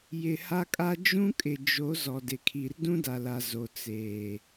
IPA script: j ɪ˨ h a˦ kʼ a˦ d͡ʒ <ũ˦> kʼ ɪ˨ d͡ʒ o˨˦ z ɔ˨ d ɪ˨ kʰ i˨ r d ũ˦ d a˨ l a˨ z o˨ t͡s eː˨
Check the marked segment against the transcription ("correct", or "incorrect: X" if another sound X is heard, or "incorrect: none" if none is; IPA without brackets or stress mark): correct